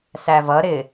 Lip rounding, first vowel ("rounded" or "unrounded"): unrounded